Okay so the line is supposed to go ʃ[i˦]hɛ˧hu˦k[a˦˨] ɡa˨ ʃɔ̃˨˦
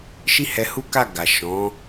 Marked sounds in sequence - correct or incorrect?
correct, correct

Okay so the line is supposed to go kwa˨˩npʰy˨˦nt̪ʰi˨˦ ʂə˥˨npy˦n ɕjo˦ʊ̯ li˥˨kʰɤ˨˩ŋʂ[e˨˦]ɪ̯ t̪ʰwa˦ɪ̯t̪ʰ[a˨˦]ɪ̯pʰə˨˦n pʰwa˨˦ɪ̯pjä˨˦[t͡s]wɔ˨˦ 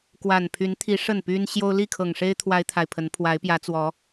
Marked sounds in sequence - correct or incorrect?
incorrect, incorrect, correct

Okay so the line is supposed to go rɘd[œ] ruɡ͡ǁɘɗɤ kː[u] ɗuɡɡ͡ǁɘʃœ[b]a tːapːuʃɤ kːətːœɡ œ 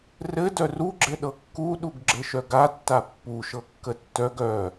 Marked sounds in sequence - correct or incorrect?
correct, correct, incorrect

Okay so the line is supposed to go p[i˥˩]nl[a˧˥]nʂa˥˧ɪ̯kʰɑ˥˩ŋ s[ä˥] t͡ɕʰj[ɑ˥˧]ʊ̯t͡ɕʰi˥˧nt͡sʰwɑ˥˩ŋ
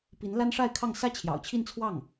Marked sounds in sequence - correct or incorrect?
incorrect, incorrect, correct, incorrect

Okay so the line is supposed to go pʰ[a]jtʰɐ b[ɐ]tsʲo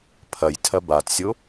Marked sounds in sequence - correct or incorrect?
incorrect, incorrect

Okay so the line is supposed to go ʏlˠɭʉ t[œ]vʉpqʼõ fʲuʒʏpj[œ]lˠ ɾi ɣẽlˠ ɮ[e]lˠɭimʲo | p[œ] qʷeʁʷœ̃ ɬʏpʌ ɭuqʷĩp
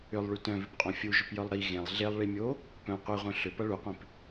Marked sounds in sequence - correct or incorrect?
incorrect, correct, correct, incorrect

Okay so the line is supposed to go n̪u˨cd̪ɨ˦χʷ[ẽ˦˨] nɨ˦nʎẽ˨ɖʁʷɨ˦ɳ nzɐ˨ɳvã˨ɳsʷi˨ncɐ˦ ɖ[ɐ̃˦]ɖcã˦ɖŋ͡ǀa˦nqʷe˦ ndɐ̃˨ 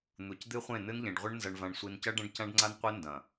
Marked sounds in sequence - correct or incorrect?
correct, correct

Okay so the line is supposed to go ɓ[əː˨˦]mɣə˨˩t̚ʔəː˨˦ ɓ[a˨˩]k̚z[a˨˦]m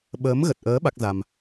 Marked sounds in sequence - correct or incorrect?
correct, incorrect, incorrect

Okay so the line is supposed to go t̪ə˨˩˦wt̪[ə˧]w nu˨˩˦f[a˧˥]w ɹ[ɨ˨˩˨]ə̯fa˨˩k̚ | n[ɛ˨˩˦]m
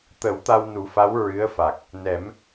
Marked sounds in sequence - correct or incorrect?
incorrect, correct, incorrect, correct

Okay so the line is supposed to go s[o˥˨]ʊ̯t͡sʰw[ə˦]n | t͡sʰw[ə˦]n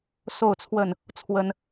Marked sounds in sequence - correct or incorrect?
correct, incorrect, correct

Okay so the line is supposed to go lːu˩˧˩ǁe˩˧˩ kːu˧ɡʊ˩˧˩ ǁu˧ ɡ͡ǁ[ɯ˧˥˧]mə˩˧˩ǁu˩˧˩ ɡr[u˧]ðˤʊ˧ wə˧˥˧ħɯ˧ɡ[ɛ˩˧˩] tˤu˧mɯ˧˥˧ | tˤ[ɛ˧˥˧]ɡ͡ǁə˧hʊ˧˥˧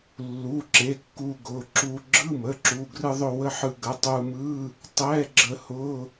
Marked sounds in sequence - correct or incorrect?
correct, incorrect, incorrect, correct

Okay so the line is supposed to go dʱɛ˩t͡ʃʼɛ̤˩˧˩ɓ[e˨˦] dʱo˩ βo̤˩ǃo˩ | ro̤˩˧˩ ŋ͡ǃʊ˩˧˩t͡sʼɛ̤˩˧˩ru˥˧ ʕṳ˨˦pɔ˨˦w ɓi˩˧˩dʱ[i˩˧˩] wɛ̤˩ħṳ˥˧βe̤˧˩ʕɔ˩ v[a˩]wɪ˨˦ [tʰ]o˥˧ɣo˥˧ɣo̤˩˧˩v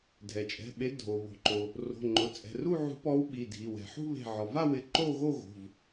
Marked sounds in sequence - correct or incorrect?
correct, correct, incorrect, incorrect

